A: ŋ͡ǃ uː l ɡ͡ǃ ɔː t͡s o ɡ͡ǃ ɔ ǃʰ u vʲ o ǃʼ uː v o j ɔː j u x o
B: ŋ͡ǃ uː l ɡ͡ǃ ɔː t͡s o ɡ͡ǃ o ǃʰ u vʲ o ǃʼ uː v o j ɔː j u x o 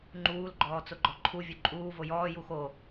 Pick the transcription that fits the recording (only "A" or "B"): A